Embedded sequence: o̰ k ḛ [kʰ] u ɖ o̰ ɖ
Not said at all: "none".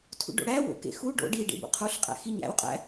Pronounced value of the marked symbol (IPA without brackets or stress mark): x